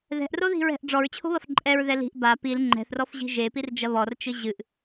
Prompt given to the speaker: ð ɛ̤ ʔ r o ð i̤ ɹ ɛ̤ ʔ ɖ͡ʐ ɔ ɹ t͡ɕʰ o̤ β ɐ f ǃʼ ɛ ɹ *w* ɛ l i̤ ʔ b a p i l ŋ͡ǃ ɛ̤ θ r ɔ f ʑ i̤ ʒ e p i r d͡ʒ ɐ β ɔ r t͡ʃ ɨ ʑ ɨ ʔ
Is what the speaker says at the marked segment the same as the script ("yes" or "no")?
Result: no